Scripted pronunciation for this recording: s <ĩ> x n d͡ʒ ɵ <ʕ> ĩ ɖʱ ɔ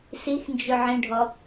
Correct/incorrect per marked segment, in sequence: incorrect, correct

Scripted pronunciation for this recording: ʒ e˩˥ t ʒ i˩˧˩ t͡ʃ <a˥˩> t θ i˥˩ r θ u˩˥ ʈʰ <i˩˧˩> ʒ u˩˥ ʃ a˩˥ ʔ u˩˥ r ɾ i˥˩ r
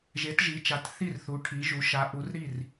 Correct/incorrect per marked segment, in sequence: incorrect, incorrect

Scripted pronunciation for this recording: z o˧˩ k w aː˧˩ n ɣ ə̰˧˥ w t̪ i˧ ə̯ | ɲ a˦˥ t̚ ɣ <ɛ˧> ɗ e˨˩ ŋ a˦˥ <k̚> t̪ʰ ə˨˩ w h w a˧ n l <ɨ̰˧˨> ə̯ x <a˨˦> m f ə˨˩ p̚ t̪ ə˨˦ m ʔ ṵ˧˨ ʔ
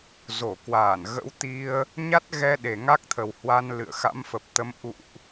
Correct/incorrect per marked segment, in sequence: correct, correct, correct, incorrect

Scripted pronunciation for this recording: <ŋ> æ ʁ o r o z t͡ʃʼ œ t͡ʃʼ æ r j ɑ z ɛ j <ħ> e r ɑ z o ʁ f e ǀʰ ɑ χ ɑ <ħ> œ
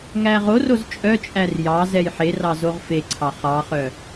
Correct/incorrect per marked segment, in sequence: correct, correct, incorrect

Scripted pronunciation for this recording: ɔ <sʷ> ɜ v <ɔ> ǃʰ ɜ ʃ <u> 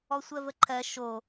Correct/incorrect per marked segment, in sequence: correct, incorrect, incorrect

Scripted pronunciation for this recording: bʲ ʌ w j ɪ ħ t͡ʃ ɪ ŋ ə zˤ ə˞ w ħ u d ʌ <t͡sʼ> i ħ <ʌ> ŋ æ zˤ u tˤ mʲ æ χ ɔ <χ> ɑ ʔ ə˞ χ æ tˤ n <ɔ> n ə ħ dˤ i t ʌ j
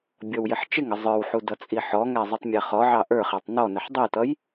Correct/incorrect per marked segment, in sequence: correct, incorrect, incorrect, correct

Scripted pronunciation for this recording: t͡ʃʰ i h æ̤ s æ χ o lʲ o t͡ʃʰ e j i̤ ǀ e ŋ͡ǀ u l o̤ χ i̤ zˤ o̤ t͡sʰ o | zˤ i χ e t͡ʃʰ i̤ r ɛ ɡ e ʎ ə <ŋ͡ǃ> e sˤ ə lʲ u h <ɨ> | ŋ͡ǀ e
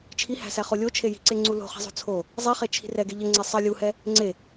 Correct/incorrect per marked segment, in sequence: incorrect, incorrect

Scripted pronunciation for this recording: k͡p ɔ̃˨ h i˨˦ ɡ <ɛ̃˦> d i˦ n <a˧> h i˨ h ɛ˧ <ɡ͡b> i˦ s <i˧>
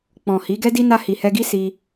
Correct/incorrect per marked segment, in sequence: incorrect, correct, incorrect, correct

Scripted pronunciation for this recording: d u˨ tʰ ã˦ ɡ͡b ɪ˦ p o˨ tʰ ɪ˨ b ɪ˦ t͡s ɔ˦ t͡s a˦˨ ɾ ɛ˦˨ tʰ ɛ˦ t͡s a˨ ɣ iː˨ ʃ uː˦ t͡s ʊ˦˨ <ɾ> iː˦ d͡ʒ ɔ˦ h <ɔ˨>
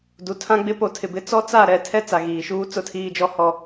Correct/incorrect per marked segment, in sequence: incorrect, incorrect

